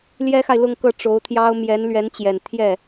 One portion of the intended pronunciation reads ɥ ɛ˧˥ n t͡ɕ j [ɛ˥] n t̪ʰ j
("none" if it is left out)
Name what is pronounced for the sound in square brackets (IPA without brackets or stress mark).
ɛ˨˩